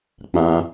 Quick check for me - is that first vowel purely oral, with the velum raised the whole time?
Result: no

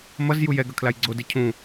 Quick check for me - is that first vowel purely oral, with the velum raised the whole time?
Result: yes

